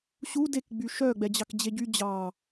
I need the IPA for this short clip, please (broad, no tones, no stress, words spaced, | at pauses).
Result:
ɕu dek ɡ͡byʃœ ɡ͡bɛd͡ʑɑkd͡ʑeɟy d͡ʑɑ